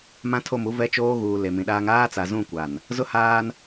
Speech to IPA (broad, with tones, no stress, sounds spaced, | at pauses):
m ã˦ tʰ o˦˨ m u˦ v ɛ˦ t͡ʃ oː˦ ɣ uː˨ l e˨ m ĩ˨ ɗ aː˦ ŋ aː˦ t͡s a˨ z ũ˦˨ kʷ a˨ n | z ʊ˦ h aː˦ n